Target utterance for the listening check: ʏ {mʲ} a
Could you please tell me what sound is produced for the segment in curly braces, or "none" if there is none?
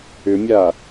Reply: mʲ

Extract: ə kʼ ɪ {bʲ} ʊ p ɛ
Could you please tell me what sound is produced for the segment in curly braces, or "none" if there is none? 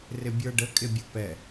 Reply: bʲ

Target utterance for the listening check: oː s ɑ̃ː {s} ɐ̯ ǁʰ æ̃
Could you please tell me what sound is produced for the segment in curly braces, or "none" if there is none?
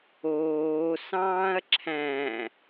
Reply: none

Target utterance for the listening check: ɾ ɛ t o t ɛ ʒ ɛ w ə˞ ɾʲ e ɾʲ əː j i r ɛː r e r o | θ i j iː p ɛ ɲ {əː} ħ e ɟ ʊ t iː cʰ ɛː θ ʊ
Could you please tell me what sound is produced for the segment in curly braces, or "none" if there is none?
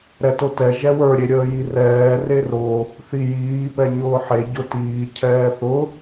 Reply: ʊː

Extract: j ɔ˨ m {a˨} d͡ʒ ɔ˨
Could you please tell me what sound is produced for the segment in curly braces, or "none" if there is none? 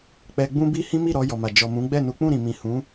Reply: a˨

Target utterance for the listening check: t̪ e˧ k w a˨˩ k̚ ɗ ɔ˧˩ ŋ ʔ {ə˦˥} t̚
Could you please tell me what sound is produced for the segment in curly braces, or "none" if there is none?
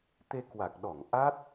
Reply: a˦˥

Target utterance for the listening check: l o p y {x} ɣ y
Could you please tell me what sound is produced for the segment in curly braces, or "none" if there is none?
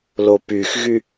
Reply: x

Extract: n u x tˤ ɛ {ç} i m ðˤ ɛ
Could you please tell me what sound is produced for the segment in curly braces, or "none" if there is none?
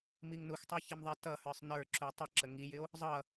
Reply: ç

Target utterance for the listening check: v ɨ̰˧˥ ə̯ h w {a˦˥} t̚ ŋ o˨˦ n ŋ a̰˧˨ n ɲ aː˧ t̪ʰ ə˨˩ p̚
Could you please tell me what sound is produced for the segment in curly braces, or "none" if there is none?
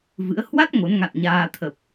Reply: a˦˥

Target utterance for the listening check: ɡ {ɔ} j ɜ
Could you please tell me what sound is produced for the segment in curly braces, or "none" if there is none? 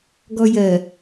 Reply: ɔ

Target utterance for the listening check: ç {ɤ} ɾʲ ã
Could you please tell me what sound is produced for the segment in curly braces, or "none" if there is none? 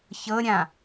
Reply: ɤ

